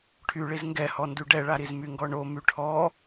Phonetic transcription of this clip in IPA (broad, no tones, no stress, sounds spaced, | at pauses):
ʈʰ y ɭ i z ŋ ɡ ɛ h ɔ n d y ɖ ɛ ɭ a ɾ i z m y ŋ ɡ ɔ ɳ o m y ʈʰ ɔ